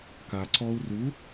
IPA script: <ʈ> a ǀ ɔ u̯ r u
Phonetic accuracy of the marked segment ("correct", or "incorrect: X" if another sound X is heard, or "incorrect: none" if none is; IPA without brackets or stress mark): incorrect: k